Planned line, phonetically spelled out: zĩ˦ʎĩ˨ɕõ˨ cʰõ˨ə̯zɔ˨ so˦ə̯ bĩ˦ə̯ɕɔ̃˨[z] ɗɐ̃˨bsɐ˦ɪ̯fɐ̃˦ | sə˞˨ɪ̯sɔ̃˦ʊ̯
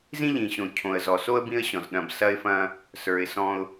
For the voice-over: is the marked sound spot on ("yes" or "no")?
yes